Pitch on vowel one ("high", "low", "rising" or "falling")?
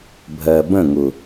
low